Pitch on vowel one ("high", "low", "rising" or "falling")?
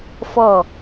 falling